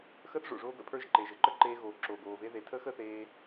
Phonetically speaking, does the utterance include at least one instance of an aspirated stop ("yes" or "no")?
yes